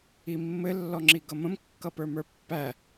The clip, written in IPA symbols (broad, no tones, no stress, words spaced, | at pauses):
imːɘ lːɔŋ͡ǁiɡʌmə̃m kːʌpə˞mə˞pːæ